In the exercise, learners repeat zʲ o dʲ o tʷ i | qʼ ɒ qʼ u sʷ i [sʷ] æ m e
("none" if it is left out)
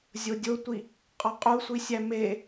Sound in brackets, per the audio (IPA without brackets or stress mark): sʲ